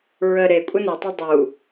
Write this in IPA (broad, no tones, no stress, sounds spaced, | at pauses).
ɹ ə ɾ e kʷʼ ə n e tˤ ø dˤ u